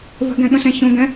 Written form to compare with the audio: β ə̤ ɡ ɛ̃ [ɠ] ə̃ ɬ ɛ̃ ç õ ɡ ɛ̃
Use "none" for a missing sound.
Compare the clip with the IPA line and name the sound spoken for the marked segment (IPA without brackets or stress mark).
ɠ